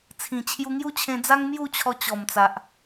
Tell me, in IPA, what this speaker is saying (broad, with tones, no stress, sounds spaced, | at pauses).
t͡sʰ ĩ˨˩ t͡ɕʰ j u˧ ŋ j u˥˧ t͡ɕʰ ẽ˧ d͡z a˦ ŋ m j u˥˧ t͡ɕʰ ɔ˧ t͡ɕ ɔ˨˩ m t͡s a˨ ʔ